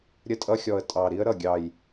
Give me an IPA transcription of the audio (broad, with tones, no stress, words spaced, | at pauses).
ɾʲə˦tʼʌ˦xʲɔ˨˩ə̯ tʼɑ˨˩ɾi˦ə̯ ɾʌ˨˩ɡʲɑ˨˩j